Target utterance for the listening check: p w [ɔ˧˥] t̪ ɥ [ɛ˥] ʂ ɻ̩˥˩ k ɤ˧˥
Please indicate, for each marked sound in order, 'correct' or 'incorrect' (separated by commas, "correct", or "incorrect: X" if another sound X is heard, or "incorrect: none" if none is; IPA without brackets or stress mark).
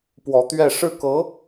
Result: correct, incorrect: ɛ˥˧